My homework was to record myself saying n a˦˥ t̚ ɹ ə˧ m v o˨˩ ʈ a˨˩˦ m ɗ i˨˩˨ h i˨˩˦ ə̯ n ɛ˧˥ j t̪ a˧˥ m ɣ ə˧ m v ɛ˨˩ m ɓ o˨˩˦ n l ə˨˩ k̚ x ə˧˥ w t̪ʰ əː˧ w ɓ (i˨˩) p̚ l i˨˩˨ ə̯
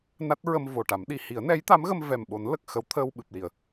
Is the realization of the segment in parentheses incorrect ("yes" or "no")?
yes